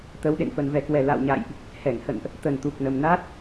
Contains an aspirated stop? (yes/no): no